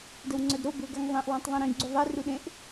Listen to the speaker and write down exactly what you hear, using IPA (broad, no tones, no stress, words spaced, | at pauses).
dəwŋ͡ǀœdɾo bøɡaŋðˤẽʔ wãtˤðˤẽɾĩ ɡ͡ǀuðˤɛ ruɗẽʔ